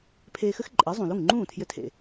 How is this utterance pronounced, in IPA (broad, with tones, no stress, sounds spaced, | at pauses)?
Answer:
pʰ eː˧ x ɘ˥ x ǃʼ e˩˥ zˤ ũ˩ l u˥˩ ŋ ŋ͡ǃ ũː˥˩ tʰ j ɘ˧ tʰ ḛ˩